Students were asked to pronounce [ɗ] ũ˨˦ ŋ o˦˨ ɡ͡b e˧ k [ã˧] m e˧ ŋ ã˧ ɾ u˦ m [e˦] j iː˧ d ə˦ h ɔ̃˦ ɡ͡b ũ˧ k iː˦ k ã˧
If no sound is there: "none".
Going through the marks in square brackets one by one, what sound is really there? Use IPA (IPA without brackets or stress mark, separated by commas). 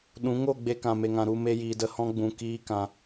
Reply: ɗ, ã˨, e˦